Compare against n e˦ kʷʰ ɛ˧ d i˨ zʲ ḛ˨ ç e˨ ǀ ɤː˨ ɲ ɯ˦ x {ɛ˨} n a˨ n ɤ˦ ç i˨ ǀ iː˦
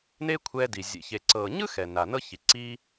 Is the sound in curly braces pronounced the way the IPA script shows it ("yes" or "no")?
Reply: yes